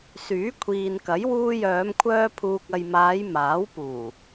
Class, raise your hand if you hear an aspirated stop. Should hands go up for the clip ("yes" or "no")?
yes